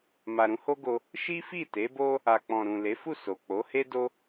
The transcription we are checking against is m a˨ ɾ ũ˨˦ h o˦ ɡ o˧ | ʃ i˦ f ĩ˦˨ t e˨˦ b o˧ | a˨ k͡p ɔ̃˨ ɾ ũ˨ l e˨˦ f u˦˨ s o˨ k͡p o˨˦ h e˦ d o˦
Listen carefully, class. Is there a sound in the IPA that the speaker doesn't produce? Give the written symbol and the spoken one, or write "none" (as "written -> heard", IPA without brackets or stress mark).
ĩ˦˨ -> i˦˨